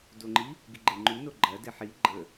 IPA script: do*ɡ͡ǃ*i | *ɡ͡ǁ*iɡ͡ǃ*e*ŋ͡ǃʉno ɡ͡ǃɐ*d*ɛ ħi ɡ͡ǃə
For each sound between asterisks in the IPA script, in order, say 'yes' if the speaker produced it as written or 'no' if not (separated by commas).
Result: no, no, yes, yes